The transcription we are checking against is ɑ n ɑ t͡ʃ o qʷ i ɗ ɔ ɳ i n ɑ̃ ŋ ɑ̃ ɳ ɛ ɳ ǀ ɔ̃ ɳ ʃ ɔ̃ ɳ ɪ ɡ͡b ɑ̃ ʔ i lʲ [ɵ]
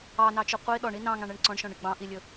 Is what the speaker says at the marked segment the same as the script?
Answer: yes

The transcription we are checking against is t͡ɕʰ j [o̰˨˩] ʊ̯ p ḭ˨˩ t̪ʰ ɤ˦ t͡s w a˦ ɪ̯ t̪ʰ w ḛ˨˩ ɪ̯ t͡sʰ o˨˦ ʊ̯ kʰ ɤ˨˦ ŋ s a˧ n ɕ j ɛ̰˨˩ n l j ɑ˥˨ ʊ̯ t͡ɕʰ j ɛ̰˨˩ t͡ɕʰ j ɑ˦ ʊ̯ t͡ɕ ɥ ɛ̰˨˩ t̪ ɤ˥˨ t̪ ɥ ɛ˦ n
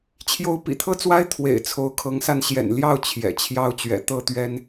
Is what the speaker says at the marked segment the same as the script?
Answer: no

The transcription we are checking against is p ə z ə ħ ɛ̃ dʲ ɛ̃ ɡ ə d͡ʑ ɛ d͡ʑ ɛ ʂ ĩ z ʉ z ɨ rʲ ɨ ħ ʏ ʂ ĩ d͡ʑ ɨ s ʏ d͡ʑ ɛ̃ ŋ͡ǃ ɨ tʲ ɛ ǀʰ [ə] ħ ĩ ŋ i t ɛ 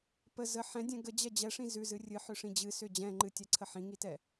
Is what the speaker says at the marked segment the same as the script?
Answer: yes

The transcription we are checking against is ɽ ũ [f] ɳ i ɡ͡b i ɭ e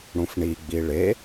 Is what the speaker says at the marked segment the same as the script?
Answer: yes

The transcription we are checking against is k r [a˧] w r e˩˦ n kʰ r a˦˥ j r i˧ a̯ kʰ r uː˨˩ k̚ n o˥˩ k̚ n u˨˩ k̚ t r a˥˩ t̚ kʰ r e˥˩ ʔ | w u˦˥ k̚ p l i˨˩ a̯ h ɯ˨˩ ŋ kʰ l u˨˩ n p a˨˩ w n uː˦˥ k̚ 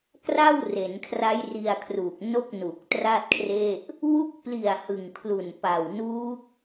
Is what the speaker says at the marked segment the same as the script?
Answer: no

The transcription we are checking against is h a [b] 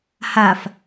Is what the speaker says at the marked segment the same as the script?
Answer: no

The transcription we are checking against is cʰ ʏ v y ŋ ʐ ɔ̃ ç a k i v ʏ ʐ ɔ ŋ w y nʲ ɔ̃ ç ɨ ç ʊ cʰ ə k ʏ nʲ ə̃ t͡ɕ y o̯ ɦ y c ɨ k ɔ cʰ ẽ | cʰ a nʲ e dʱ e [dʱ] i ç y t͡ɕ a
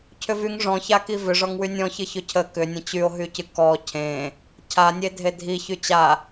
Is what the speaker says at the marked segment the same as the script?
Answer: yes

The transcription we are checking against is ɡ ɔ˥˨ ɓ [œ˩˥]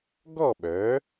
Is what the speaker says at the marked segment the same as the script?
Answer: yes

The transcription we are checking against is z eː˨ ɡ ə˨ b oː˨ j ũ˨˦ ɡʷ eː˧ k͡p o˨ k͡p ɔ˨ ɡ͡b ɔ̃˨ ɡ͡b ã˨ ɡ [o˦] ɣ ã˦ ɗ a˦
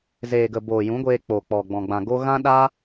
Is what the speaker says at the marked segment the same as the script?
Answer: yes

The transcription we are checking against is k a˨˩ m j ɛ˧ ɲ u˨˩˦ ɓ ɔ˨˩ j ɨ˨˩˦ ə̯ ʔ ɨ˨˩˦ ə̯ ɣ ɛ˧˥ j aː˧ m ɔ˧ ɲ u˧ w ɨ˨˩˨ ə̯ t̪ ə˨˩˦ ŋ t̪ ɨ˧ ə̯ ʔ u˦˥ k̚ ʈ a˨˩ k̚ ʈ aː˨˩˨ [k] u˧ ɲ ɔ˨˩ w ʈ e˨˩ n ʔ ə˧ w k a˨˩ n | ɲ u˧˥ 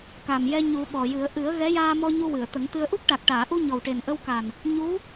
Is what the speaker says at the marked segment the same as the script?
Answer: no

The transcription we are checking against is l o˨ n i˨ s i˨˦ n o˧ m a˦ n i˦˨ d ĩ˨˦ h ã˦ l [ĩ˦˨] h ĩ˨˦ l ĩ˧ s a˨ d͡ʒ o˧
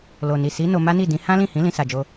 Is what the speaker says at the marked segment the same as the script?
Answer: yes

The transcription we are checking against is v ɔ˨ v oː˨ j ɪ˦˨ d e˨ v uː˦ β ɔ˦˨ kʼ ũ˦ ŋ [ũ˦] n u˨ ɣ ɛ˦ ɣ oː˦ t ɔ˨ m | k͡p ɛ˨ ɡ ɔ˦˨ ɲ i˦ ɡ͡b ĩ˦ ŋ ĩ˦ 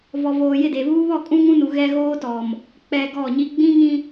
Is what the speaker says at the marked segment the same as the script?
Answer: yes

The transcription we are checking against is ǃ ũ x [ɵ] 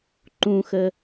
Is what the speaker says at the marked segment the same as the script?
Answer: no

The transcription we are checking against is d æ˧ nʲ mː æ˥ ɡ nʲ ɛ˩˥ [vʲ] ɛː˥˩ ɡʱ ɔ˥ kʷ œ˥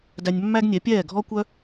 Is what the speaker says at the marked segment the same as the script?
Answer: no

